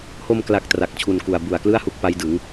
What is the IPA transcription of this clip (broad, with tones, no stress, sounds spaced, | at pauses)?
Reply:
h o˧ m k l a˨˩ k̚ t r a˨˩ k̚ t͡ɕʰ u˨˩ n k u˨˩ a̯ b u˨˩ a̯ k l ɯ˥˩ a̯ h u˦˥ k̚ p a˦˥ j d ɯ˩˦ ŋ